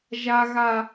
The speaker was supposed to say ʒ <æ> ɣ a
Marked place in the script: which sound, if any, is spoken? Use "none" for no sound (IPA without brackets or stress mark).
a